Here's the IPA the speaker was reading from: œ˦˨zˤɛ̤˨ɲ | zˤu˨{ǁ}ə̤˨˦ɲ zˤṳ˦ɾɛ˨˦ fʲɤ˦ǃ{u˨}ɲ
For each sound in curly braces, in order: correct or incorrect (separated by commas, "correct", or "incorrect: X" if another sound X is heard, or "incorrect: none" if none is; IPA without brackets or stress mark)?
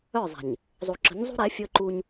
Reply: correct, incorrect: u˦